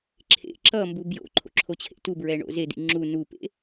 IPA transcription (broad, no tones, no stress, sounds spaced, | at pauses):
ǁʰ ḛ ǁ ʌ m b u b j o̰ ǃʰ o̰ ǁʰ o t͡ɕʰ ḛ t u b ɹ ɛ ɳ o̰ z e d̪ ḭ ŋ͡ǁ u n u p ḛ